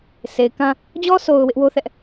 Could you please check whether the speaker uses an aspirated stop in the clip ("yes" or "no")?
no